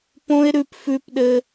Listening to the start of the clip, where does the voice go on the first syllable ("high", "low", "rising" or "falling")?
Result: high